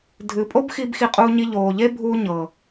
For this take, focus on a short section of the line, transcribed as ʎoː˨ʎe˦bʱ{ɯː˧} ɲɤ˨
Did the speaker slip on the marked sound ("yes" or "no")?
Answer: yes